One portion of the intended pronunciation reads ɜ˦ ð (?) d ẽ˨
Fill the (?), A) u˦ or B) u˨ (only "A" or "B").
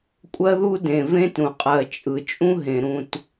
A